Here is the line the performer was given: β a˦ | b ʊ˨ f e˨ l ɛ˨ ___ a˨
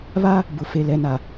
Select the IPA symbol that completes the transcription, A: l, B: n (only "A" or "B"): B